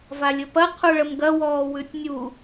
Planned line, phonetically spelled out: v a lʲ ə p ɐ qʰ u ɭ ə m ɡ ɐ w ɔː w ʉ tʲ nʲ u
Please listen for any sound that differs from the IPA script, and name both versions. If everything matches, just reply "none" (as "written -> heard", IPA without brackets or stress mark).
none